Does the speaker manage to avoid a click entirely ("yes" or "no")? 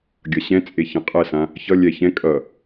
yes